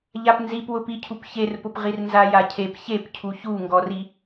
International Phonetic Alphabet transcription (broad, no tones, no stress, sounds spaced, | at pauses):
ʎ a p n z i p w ʊ p i cʰ u p ç e r p ʊ p ʁ i r n z a j a cʰ e p ç e p cʰ u ç u ŋ ɡ ɔ r i